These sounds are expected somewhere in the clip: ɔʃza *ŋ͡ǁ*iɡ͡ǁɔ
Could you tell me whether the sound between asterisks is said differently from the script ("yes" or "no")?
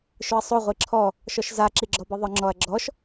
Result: yes